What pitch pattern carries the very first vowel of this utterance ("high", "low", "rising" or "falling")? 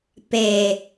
low